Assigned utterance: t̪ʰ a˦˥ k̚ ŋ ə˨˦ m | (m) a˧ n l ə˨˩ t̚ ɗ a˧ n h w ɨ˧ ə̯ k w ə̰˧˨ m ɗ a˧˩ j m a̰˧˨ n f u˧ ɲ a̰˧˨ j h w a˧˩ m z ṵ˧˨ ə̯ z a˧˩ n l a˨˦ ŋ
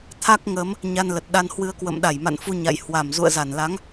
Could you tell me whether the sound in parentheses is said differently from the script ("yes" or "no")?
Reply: yes